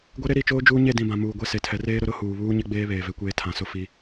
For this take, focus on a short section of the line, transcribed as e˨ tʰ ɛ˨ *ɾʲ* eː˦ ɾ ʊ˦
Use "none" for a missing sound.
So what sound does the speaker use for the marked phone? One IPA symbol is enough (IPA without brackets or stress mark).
r